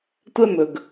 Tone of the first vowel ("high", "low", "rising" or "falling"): high